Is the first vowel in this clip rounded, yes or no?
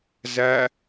no